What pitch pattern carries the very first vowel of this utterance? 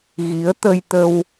rising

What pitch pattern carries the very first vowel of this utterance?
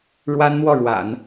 high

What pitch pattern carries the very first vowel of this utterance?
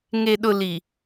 low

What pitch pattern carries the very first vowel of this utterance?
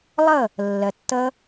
falling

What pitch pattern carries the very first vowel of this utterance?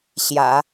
low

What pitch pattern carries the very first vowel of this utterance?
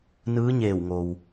rising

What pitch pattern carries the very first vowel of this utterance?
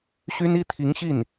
high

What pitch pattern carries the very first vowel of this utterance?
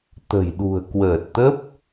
low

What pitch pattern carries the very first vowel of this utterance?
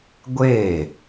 falling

